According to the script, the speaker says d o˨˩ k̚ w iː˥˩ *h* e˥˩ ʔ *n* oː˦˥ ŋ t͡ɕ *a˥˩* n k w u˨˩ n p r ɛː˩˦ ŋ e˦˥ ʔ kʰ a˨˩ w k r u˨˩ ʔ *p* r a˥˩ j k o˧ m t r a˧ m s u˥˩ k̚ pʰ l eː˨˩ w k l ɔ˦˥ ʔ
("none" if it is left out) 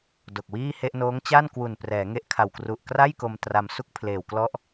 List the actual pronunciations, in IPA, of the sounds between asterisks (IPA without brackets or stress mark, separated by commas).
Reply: h, n, a˥˩, k